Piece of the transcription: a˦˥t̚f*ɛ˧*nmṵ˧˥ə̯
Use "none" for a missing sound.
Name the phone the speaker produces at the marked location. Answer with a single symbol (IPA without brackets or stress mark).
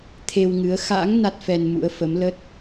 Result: ɛ˧